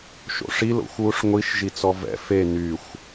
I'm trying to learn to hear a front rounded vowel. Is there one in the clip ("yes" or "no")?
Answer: yes